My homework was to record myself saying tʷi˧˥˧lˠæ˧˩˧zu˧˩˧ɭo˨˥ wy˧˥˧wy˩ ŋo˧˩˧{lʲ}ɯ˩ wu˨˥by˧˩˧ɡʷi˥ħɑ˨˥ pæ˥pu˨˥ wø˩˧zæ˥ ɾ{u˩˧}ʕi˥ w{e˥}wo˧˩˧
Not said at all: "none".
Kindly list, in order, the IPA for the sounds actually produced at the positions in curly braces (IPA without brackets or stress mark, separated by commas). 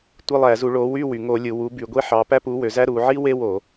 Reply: lʲ, u˩˧, e˥